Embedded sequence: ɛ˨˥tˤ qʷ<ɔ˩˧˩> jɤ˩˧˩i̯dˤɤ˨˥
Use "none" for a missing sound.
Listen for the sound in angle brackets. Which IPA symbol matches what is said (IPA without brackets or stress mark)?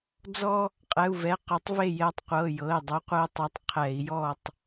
ɤ˩˧˩